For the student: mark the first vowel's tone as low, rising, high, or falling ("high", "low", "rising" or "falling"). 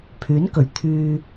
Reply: rising